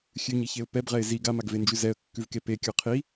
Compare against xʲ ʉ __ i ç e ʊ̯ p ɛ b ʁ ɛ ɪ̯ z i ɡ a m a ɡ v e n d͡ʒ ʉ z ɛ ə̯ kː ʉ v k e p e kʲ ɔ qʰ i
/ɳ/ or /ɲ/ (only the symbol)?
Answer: ɲ